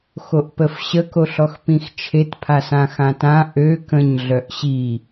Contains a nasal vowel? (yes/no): yes